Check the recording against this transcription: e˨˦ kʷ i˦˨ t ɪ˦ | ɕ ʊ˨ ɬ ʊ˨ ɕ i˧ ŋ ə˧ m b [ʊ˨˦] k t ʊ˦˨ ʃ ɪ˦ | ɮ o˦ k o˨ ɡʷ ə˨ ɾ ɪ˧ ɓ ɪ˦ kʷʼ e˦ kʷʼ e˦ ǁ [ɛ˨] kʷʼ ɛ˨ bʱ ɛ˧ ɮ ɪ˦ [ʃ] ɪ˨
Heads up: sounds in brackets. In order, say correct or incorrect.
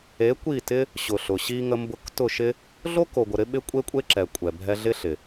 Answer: incorrect: ʊ˧, correct, incorrect: ɬ

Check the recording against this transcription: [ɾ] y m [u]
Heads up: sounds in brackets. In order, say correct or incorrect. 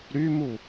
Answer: correct, correct

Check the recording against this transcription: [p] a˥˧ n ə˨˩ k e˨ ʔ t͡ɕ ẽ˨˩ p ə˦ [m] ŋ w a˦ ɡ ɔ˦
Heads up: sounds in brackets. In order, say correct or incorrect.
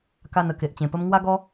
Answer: incorrect: k, correct

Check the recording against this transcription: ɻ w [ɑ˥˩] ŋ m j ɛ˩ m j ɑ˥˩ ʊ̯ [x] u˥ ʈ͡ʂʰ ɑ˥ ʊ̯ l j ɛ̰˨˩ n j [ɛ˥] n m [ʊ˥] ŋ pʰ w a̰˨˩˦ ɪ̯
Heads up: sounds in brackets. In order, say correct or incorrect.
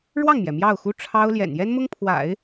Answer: correct, correct, correct, correct

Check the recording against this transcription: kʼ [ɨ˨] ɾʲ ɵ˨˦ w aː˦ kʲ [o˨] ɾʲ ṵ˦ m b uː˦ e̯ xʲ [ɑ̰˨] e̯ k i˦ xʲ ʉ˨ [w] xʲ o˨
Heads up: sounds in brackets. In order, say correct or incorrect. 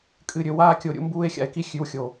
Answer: correct, correct, incorrect: a̰˨, correct

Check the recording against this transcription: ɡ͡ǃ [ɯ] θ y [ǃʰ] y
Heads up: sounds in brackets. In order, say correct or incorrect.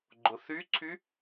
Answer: incorrect: ʊ, incorrect: ǀʰ

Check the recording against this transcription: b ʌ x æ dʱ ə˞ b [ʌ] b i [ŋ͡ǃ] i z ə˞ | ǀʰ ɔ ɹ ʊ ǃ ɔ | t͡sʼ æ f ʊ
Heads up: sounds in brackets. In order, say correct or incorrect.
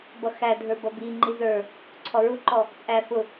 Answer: correct, correct

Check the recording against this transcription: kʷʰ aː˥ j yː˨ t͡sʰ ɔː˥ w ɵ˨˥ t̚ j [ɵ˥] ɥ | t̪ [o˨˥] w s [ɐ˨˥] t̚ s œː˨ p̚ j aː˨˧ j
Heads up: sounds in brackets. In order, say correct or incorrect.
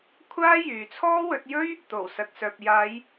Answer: correct, incorrect: o˨˩, incorrect: ɐ˨

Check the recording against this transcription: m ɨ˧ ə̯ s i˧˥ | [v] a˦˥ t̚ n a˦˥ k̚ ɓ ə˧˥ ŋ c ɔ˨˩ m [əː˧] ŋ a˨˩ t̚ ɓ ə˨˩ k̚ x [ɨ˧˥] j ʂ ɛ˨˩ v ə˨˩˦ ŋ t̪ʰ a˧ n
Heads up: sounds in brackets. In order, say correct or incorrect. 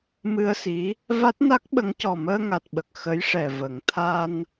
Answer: correct, correct, incorrect: ə˧˥

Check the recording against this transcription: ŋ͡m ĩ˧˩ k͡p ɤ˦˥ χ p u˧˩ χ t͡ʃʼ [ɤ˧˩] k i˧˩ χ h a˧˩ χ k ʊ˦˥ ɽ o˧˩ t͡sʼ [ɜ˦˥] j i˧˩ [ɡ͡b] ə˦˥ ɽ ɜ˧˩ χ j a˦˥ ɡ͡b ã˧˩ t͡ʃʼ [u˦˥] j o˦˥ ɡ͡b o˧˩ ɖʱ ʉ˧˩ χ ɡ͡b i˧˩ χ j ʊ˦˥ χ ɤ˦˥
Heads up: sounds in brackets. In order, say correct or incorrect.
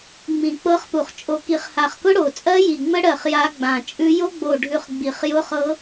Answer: incorrect: o˧˩, correct, incorrect: ŋ͡m, incorrect: ʉ˦˥

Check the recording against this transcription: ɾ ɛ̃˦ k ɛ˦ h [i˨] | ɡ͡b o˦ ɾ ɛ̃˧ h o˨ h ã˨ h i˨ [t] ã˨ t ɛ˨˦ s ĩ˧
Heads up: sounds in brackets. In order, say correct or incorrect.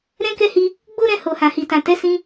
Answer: incorrect: i˦, correct

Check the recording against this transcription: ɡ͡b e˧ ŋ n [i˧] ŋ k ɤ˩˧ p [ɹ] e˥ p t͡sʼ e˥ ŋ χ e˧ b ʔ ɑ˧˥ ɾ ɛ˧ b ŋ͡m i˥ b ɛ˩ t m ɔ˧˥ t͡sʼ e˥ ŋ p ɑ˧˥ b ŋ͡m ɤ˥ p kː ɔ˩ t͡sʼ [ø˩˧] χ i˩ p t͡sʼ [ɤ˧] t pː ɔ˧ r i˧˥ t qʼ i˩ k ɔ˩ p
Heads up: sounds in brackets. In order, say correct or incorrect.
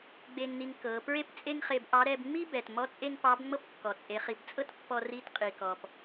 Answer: correct, correct, incorrect: e˩˧, incorrect: ɤ˥

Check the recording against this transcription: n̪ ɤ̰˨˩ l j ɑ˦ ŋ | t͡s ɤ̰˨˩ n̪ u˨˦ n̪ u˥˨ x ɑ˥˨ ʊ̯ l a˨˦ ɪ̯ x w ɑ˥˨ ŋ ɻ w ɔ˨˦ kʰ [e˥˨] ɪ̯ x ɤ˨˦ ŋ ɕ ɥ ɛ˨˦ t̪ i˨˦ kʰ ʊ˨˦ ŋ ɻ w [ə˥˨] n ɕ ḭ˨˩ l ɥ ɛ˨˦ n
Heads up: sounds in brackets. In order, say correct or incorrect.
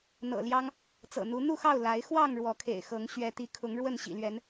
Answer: incorrect: ḛ˨˩, correct

